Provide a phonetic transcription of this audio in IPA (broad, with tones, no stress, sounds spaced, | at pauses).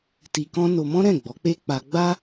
t i˧ k ɔ̃˦ n o˧ m ɔ̃˦ ɾ ɛ̃˦˨ ɡ͡b ɔ˨˦ k͡p e˦ k͡p a˧ ɡ͡b a˦